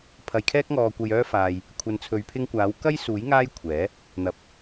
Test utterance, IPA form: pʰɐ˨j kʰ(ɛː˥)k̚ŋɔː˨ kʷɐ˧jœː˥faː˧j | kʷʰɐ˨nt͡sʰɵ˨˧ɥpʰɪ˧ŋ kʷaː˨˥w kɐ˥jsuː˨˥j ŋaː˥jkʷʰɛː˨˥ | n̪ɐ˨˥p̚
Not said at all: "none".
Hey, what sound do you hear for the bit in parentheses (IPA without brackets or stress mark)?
ɛː˧